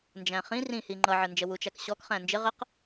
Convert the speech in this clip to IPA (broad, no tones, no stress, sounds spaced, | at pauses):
n d͡ʒ æ̃ χ ĩ r ĩ h i ŋ͡ǃ ʌ ʕ ə n d͡ʒ ə w u t͡ʃ æ k ɕ ɔ k χ æ̃ n d͡ʒ ɪ ʁ ə q